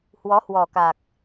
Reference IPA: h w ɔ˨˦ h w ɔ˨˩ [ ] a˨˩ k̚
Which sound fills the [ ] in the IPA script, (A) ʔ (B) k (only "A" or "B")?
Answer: B